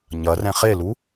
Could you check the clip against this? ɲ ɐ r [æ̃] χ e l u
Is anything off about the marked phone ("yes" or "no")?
yes